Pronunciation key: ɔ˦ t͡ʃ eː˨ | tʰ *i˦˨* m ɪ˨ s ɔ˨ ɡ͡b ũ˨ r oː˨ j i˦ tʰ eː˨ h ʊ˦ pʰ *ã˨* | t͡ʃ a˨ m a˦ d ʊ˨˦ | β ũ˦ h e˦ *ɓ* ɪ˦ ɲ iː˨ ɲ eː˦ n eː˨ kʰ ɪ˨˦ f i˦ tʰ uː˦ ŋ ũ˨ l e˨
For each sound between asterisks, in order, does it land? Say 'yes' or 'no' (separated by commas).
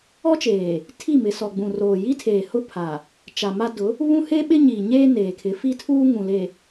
yes, no, yes